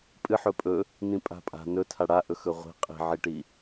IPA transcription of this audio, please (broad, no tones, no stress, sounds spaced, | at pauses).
pʼ ɨ ħ ɵ pʼ ɵ | n ĩ pʼ a̤ pʼ a̤ n ɵ tʰ a ɽ a ʔ ɵ x ɵ ʁʷ i̤ qʼ i̤ ʕ i ʈ i